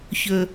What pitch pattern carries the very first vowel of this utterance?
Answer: high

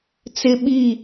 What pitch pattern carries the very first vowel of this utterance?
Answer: high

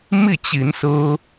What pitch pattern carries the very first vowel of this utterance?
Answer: falling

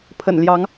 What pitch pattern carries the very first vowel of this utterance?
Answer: low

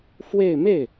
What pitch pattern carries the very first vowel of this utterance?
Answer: falling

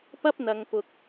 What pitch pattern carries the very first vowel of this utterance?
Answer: high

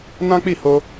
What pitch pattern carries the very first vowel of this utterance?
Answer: high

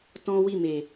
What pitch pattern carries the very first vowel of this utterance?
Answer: high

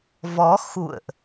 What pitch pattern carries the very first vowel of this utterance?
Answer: rising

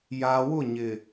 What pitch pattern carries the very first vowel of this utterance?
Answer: low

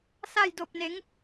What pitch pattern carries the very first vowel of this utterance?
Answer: falling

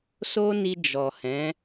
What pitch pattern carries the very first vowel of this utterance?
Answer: high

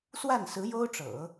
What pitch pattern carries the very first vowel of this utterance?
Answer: falling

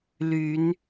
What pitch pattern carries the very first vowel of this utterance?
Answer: rising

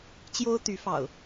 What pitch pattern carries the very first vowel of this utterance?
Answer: high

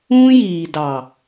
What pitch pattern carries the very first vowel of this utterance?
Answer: high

